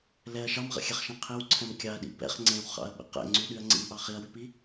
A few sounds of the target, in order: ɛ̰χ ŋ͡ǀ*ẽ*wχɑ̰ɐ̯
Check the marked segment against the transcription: correct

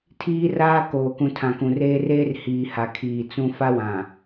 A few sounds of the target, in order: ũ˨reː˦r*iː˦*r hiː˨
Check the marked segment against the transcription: incorrect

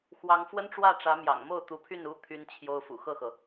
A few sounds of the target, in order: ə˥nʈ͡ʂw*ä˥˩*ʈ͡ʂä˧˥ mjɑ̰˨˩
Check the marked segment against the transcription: correct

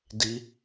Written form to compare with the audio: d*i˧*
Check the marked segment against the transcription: correct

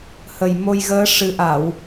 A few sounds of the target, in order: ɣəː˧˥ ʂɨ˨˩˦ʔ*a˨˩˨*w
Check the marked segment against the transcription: correct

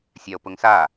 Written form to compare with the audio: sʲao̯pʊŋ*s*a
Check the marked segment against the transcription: correct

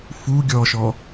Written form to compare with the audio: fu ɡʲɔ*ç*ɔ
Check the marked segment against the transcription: incorrect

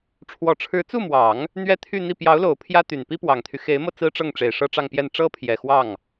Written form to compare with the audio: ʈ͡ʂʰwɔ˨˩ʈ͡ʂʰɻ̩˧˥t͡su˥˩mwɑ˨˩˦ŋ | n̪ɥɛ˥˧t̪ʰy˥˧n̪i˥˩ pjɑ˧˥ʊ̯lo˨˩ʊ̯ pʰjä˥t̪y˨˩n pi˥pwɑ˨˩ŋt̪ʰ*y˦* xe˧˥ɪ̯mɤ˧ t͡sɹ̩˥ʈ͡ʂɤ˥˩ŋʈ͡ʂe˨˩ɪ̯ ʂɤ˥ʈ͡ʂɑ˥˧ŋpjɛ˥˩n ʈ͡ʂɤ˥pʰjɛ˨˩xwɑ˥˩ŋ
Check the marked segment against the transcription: correct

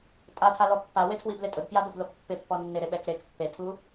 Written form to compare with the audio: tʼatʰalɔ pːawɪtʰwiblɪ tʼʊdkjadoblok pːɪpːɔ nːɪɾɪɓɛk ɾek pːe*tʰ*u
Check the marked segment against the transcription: correct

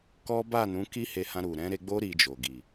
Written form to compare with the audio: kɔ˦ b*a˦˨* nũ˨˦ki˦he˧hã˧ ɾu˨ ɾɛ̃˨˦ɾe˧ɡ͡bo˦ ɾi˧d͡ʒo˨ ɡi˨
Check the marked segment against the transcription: correct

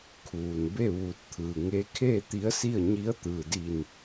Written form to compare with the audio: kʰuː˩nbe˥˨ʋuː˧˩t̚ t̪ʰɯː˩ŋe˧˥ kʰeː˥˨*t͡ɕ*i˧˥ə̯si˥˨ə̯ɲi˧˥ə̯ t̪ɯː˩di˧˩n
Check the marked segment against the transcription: incorrect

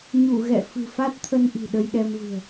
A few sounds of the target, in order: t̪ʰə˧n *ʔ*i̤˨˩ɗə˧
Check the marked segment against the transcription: correct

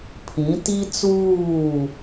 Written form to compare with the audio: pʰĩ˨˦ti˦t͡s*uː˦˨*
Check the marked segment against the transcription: correct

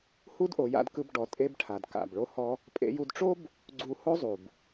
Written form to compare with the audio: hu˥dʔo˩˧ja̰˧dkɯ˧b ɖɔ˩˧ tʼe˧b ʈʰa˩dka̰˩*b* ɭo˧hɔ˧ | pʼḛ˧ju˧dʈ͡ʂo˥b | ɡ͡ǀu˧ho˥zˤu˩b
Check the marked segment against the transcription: correct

